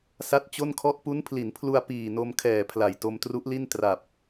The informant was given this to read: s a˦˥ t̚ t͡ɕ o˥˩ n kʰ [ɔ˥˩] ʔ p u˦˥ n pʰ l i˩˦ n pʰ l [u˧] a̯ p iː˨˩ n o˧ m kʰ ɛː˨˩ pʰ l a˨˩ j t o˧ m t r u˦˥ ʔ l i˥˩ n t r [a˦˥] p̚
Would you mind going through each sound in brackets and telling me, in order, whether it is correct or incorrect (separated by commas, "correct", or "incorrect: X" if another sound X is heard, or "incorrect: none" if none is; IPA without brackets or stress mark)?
correct, correct, incorrect: a˨˩